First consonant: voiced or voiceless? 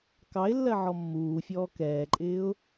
voiceless